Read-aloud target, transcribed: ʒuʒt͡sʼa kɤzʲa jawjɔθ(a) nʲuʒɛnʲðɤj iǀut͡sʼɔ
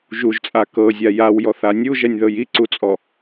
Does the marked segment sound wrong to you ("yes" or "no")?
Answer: no